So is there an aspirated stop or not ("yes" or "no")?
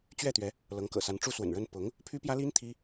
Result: yes